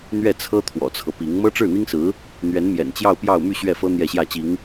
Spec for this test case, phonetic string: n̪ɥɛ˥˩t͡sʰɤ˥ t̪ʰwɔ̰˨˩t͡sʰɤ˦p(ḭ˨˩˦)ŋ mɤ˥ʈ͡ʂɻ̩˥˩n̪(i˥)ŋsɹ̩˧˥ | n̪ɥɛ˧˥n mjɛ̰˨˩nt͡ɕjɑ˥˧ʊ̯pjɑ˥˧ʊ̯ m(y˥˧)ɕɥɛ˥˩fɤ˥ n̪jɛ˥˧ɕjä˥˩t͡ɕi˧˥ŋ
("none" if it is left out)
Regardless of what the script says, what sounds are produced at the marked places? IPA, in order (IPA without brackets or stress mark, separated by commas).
i˧˥, i˥, y˥˧